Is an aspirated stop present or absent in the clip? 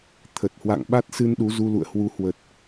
present